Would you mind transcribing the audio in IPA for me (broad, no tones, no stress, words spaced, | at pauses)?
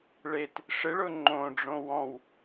ɭet | ʂɪɭʊ ŋ͡ǃõɖ͡ʐõ wɔ̃w